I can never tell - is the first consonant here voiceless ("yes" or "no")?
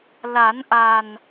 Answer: no